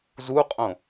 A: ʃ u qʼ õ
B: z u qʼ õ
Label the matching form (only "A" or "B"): B